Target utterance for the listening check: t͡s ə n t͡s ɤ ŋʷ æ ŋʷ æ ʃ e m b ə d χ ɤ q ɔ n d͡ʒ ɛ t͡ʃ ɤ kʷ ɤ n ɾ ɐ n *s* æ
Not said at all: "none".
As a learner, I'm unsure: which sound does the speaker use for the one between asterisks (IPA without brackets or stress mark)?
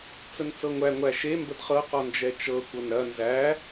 z